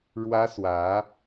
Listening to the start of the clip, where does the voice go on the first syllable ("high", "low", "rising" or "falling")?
high